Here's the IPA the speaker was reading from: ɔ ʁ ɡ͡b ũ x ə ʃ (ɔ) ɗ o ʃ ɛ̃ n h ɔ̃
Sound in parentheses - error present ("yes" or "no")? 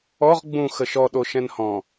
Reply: no